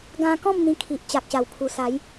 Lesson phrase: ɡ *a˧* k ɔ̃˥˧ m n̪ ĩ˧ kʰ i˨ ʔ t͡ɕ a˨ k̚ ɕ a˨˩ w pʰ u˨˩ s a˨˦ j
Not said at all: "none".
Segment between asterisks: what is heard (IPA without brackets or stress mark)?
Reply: ã˧